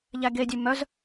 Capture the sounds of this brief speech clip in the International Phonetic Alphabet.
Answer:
ʎ æ ɡ e dʲ ʉ m œ z

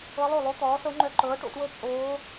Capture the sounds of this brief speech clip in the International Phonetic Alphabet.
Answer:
ɤ˧˥ lˠ o˥˩ lˠ o˧˥ t̪ ɔː˩˥ s ɤ˧˥ ŋ͡ǃ œ˧˥ ǃ ɤː˩˥ ʈ o̰˥˩ t w ɤ˥˩ t͡ʃʼ oː˧˥

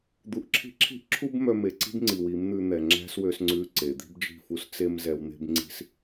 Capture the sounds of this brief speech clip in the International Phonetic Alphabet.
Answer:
d̪ u˧ ʔ ǁʰ i̤˦ ǁʰ i̤˦ ʔ ǁʰ u˦ b m œ˧ m e˨ ǀ i̤˦ b ŋ͡ǀ i˨ w i˨˦ m n̪ ʉ˧ n̪ ɛ˨ ŋ͡ǁ æ̤˦ s w ø˧ s ŋ͡ǀ ʉ˧ ǀ e˨ d̪ i̤˦ b d͡ʒ i̤˦˨ f u˦ s t͡s e˦ m z ɛ˧ w n̪ e̤˦ b ŋ͡ǀ i̤˦ s

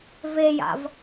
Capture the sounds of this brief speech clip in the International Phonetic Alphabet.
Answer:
v e j a̰ v

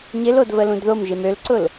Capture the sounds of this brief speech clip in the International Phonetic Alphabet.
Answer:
ɲ ɪ l o d v ə l ũ d ð o m ʒ e m ø l ǀ ʊ l

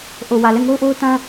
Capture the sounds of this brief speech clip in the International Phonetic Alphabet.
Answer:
ʔ o˨ w ä˨ l ɛ˦˨ ŋ o˦ ʊ̯ ʔ o˦ ʊ̯ t ã˦

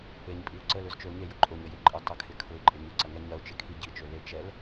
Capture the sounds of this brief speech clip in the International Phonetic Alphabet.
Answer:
e ɲ pʼ i ʊ̯ ǀ ə l ø z t͡ʃ ø ʊ̯ ɲ e j ʊ ǃʼ ʊ ɲ ə j e ǃʼ ə tˤ ə kʰ ɪ kʰ ʊ ɪ̯ ǃʼ ɪ ɲ ʊ ǀ ɐ ŋ ɛ ɲ ɐ ʊ̯ t͡ʃ ɪ kʰ i ɟ i t͡ʃ ø l e t͡ʃ ɛ l

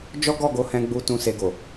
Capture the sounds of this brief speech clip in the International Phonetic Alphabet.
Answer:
d͡ʒ ɔ˦ ɡ ɔ˦˨ ɡ o˨˦ h ɛ̃˧ ɡ͡b u˧ t ũ˧ s e˧ ɡ o˨

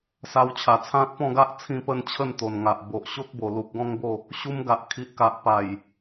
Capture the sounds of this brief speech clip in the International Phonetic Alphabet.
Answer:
s a˧ w t͡ɕʰ a˨˩ t͡sʰ ã˦ t̚ p ɔ̃˥˧ ɡ a˦ ʔ t͡sʰ ĩ˥˧ p ə˥˧ n t͡ɕʰ ə˥˧ n t̪ o˨˩ n ŋ a˨ ʔ b o˨ ʔ ɕ o˦ k̚ b o˨˩ l u˨ k̚ ɡ ɔ̃˦ ŋ b o˥˧ | ɕ u˧ m ɡ a˨ ʔ kʰ i˨ ʔ k a˨ ʔ p a˨˩ j

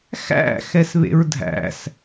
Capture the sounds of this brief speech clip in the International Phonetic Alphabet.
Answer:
x æ̰ x ɛ s β ḛ ɹ dʱ æ̰ s

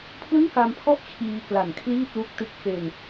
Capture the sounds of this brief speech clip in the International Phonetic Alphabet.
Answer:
pʰ l ɯ˥˩ ŋ k a˧ m pʰ ɔ˥˩ ʔ t͡ɕʰ iː˧ k l a˨˩ n kʰ l iː˥˩ t̚ l u˦˥ k̚ t ɯ˦˥ k̚ f e˧ n

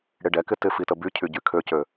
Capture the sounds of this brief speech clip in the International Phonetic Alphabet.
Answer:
ɽ ɪ ɖ ɛ k ɪ t ɪ f i t ə b y cʰ y ɟ y kʰ ø c ø

